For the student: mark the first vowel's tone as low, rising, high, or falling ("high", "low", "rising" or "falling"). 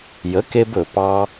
rising